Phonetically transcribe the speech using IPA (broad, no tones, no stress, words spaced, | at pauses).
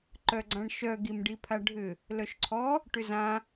ǃœɡ͡ǀãɳʃœ ɡimɖipʰaɖʱʏ | lœʃǀʰɔ | ʈʏzã